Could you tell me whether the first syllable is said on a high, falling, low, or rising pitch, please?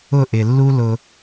falling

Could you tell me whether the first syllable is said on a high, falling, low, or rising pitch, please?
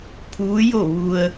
rising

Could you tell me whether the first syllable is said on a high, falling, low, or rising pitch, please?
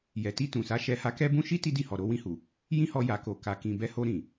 low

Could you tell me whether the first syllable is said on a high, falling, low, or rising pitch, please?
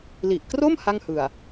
low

